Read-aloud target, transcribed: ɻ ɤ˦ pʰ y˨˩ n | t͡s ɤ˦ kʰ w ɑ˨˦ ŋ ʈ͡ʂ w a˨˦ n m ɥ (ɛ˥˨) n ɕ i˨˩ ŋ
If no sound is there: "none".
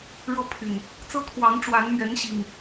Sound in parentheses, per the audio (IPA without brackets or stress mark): ɛ˨˦